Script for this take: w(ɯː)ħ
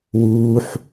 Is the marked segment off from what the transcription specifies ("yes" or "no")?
yes